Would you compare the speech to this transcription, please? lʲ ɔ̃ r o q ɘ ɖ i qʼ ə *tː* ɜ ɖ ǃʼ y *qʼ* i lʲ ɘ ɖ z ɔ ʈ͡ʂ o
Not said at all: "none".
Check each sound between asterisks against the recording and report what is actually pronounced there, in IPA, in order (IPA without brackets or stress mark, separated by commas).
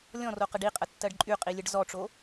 tː, qʼ